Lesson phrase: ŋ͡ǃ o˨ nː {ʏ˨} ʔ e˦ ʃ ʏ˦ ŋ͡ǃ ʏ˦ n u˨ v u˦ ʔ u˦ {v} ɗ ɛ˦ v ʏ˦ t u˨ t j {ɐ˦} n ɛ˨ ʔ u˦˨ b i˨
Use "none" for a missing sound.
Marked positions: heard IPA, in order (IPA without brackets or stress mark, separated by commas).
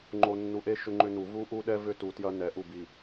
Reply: u˨, none, ɐ˦